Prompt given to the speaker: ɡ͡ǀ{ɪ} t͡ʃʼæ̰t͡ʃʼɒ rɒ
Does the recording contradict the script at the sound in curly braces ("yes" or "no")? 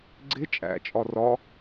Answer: no